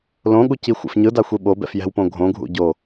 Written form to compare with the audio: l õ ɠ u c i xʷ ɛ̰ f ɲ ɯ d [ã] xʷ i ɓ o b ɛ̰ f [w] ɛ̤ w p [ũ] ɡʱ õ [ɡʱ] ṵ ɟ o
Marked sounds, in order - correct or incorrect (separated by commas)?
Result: incorrect, incorrect, incorrect, correct